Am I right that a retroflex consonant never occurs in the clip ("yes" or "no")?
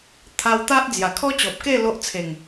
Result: yes